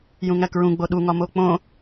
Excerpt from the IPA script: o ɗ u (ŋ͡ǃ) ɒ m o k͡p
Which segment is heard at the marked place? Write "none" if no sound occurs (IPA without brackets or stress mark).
ŋ